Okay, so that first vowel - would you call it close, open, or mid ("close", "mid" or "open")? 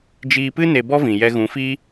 close